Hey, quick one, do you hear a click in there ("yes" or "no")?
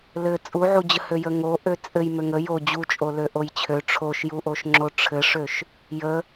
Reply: yes